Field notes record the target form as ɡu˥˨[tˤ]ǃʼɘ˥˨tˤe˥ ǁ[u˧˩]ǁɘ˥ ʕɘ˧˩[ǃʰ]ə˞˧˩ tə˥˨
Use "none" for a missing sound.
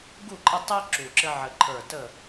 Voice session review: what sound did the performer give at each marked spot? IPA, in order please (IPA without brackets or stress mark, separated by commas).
none, u˧˩, ǃʰ